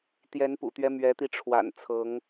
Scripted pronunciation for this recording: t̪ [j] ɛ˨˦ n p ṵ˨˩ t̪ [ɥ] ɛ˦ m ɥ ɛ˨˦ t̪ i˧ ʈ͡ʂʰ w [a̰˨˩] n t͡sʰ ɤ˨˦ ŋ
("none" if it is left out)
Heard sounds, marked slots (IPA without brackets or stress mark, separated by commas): j, ɥ, a̰˨˩